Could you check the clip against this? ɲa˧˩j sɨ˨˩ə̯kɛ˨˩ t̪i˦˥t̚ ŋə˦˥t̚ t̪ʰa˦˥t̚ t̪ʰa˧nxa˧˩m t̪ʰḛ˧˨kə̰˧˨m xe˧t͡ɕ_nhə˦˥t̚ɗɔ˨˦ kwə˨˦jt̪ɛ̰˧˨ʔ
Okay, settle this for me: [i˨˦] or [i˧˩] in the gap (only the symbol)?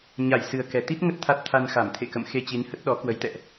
i˨˦